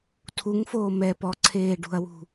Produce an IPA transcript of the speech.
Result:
tʰuŋfoːmɛ pɔǀʰeːɖṳɐ̯wṳ

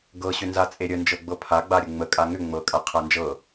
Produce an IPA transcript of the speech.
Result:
ɡɤɕʏnza t͡sʼeɾʲə nd͡ʒɤɡ͡bɤpʰaɡ͡ba ɾʲəŋ͡mə kʼaŋʏ ŋ͡mɤkʼa qʰand͡ʒɤ

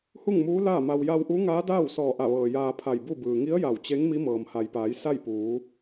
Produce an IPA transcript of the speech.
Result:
hu˥˨ŋmuː˧˥ laː˥˨ma˧w ja˧wʔu˧˥ ŋaː˧˥daː˥˨wsɔː˧˩ ʔa˧˩ʋɤː˩ jaː˧pʰa˧˩jbu˥˨bɯː˩ ŋi˧˥ə̯ ja˧˩wt͡ɕe˧˥ŋ mi˧˥mɤː˩mha˩jpaː˩˧j sa˥˨jpuː˩˧

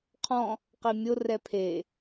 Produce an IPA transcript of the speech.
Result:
qʰɔ̃ | qimʲo rɛpʰe

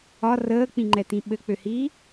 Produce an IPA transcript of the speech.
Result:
ɒ rəːk͡pĩŋ͡ǃɛtĩ ɓɘk͡pøhiː

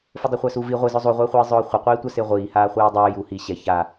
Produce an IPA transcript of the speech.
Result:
fʊdˤɪχʷasu vi ʁʷizʊ zˤuʁʷɪːχʷiː zˤʊːχʷɪqʷiː tʷasɪːʁʷiːhaː χʷiːdˤʊː ju hi ɕɛ ça

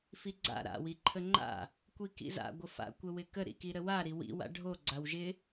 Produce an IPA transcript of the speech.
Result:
fiɡ͡ǀa̰ ɾa̰ wiǃʰəŋ͡ǃa̰ | kʷikḭza̰ ɡʷəfa̰ kʷəwɪkə ɾḭkiɾəwa ɾiwḭ wa̰ɖʱo ɡ͡ǀawʒɪ

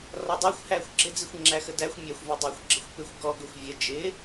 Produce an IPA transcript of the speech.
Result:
rɒdˤɛxʷ hæːxʷɡ͡ǁɪd͡zixʷ ŋ͡ǁæxədæxʷ mʲɑxʷvɛ dˤɪːxʷɡ͡ǁəxʷpɪxʷ ɡɔɡʊxʷ vʲə d͡ʒɪː

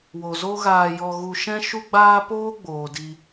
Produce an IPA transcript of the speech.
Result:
wo˨zo˦ɣaː˧jɔ˧ ɣu˧ ʃɛ̃˦ ʃu˦ɡ͡baː˦poː˦ ɡ͡boː˨di˧

